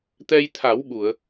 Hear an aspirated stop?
yes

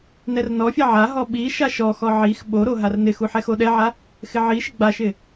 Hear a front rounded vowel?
no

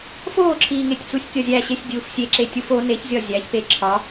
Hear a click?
yes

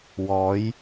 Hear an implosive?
no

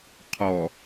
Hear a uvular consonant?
yes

